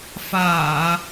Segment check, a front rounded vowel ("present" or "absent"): absent